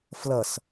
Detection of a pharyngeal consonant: absent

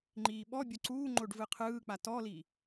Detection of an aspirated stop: present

